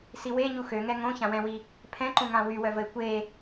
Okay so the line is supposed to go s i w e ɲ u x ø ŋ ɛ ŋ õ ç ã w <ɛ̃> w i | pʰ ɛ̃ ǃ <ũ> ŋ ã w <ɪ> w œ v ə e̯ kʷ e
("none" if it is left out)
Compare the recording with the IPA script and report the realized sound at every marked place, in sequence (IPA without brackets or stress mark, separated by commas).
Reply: ɛ̃, ũ, y